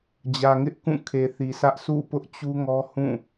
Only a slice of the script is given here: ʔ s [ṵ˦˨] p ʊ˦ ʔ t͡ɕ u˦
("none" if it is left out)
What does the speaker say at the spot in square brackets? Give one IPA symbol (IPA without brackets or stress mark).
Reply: ṵ˦˨